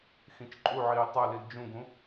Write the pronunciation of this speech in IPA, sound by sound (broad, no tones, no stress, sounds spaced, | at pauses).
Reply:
x ĩ t͡ʃ ǃʼ u ʕ iː tˤ ɛ l i l d͡ʒ ũ ɡ ũ